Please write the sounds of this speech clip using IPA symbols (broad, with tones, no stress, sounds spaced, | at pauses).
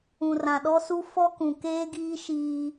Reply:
ũ˨ r ã˨ ɗ ɔ˦ s u˦ f ɔ˦ k ũ˨ k eː˦ ɡ iː˦ ʃ iː˦